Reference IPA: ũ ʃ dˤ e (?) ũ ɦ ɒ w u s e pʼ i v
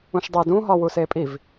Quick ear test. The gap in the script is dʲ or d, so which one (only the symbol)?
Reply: d